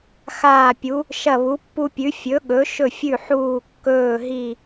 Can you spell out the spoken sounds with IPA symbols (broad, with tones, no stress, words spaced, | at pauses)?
xaː˦˨pʲu˨˥ | ʃɐ˦˨βu˨˥pːu˦pʲʉ˨˥ fʲɵ˨˥ɠɵ˨˥ʃɵ˦˨ fʲʉ˦˨ħuː˦˨kːɵː˦˨ ɦi˦˨